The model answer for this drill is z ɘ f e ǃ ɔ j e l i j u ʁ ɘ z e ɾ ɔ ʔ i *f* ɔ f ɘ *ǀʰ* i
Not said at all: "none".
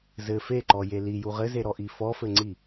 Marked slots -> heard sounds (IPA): f, ŋ͡ǀ

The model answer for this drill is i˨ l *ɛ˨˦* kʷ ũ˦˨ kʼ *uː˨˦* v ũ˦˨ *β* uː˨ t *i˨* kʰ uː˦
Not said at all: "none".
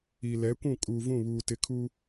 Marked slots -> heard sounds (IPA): ɛ˨˦, uː˨, β, ɪ˨

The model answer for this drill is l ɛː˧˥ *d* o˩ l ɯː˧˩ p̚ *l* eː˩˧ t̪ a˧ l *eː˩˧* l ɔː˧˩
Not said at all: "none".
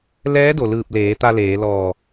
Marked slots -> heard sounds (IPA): d, l, eː˩˧

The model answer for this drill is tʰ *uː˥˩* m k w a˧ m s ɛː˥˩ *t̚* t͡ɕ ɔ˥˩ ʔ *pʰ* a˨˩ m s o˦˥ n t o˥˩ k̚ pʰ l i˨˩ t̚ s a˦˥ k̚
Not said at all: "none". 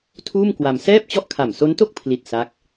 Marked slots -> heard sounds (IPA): uː˥˩, p̚, kʰ

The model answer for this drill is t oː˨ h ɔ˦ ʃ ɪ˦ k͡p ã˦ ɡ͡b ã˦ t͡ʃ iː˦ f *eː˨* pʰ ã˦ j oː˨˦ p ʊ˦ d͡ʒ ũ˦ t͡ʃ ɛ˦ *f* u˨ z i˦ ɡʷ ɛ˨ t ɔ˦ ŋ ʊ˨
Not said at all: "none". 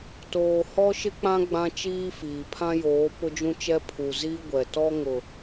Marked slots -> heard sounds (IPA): iː˨, pʰ

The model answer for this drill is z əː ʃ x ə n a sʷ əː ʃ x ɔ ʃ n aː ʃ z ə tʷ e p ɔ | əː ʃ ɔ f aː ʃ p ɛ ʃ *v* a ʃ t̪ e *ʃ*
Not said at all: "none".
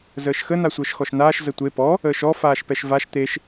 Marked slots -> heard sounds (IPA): v, ʃ

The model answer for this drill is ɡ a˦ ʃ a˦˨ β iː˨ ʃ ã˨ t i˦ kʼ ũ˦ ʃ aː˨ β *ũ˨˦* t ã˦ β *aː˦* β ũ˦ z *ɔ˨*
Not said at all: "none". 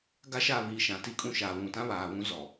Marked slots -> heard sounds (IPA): ũ˨, aː˨, ɔ˨

